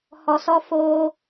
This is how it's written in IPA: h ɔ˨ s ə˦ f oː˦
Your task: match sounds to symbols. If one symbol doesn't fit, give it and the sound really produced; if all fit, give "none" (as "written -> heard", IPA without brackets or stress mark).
ə˦ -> ɔ˦